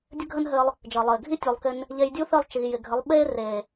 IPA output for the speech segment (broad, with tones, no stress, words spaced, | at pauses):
dʲɘ˦ɡʱə˦nɦɘ˧lˠ | d͡ʒəː˨lˠɘː˨ɡʱi˦ tʲu˨lˠ kɪ˦n | ʎe˧jdʲu˦θɘ˦˨lˠ t͡ʃiː˨jɪ˨ɡʱɘ˨˦lˠ ɓe˦ re˨